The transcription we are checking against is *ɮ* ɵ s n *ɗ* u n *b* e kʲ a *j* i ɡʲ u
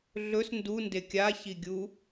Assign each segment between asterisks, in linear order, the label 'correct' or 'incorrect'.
correct, incorrect, incorrect, incorrect

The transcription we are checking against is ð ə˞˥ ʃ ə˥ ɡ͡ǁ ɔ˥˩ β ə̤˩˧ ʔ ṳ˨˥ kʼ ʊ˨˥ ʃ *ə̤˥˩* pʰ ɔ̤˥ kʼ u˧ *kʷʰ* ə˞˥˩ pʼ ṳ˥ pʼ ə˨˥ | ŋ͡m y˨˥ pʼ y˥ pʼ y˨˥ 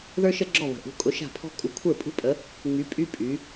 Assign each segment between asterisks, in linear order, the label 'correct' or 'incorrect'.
incorrect, correct

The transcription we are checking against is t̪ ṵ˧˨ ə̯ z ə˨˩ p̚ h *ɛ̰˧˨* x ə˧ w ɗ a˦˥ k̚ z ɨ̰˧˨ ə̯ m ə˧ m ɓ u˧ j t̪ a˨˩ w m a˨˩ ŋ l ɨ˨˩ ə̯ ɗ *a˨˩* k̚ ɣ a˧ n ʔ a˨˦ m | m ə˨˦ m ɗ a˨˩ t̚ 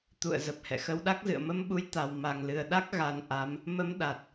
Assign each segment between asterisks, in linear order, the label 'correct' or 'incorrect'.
correct, incorrect

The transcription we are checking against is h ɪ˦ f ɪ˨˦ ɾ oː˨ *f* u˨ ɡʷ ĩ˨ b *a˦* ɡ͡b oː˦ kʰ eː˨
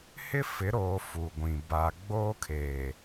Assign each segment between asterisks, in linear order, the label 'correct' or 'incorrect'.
correct, incorrect

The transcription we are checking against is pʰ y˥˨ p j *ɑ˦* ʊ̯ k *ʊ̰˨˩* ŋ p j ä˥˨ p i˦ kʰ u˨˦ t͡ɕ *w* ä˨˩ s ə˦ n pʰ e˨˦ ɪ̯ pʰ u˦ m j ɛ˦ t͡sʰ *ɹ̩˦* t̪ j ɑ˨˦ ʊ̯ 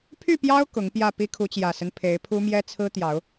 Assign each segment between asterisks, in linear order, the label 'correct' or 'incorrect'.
correct, incorrect, incorrect, correct

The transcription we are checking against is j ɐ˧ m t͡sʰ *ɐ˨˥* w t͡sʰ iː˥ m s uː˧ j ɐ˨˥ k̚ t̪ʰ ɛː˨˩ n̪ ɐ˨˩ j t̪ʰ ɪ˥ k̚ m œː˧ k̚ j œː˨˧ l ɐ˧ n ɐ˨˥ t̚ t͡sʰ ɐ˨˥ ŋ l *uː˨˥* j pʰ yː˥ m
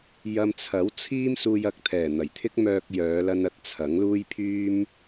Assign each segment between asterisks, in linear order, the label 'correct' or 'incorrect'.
correct, incorrect

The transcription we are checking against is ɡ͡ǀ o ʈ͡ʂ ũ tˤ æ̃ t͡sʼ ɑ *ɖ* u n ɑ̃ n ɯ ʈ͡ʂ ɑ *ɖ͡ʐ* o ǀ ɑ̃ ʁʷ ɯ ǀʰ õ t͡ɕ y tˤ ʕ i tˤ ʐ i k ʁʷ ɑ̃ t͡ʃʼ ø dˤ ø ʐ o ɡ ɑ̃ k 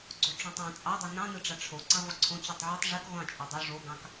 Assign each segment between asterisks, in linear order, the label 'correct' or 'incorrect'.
incorrect, incorrect

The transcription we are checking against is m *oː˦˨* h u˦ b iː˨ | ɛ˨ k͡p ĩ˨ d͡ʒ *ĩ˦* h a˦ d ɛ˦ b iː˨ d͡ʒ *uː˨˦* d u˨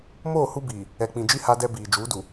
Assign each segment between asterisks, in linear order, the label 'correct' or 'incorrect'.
correct, incorrect, correct

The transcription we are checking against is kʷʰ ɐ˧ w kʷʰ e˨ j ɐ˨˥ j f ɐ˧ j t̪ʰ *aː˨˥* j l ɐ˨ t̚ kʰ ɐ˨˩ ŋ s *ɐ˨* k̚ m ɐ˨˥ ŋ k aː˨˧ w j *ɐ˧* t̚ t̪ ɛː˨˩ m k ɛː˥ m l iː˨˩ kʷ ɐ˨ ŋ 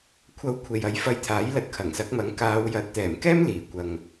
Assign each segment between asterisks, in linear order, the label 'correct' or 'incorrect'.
correct, incorrect, incorrect

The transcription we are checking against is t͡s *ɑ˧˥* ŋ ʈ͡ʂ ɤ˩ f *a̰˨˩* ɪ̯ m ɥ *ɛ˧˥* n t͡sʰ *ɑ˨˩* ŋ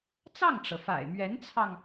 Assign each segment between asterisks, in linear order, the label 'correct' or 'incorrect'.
incorrect, correct, correct, incorrect

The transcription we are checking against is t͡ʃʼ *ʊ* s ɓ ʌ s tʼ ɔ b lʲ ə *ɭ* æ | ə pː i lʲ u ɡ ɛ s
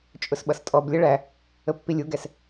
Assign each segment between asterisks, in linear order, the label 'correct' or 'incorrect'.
correct, correct

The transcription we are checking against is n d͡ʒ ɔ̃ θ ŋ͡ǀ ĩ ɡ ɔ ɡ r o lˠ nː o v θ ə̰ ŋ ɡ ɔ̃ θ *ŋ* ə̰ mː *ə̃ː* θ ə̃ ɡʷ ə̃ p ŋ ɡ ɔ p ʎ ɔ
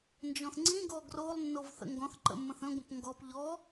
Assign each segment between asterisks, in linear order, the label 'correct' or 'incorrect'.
incorrect, incorrect

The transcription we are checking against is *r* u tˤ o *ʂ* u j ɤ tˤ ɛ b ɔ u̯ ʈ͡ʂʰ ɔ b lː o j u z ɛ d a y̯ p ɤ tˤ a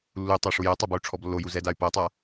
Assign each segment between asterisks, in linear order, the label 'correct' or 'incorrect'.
incorrect, correct

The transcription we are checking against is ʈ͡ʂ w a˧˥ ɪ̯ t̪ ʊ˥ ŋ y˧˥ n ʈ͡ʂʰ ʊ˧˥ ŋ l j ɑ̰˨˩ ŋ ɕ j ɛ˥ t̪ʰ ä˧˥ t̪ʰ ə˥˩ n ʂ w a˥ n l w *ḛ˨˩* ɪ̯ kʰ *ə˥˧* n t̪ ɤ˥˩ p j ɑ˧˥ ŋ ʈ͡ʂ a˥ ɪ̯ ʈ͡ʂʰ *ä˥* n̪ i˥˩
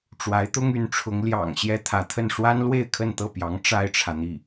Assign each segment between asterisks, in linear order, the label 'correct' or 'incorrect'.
incorrect, correct, incorrect

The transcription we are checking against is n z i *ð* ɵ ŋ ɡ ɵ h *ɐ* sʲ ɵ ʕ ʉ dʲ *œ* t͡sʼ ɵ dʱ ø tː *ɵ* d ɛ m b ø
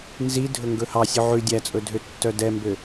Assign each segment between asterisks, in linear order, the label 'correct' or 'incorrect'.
incorrect, incorrect, incorrect, incorrect

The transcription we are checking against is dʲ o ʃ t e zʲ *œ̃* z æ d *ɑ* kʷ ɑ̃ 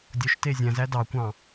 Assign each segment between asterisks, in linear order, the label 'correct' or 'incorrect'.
incorrect, correct

